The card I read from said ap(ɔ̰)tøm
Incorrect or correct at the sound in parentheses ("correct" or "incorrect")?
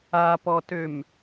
incorrect